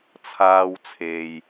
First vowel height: low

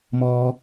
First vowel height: mid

